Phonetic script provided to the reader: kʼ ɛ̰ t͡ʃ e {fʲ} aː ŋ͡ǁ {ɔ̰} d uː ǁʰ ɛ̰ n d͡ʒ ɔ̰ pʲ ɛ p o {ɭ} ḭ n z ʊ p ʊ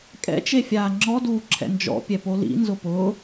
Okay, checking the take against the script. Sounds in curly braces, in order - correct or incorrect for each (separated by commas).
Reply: correct, incorrect, incorrect